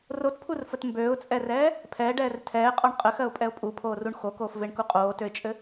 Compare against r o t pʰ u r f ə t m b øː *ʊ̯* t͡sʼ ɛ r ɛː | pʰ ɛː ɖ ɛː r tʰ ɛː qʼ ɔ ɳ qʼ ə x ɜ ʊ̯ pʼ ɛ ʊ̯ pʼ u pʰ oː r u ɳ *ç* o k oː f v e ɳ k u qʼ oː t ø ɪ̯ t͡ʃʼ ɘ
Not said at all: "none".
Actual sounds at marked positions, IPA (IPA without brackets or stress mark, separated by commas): ʊ̯, x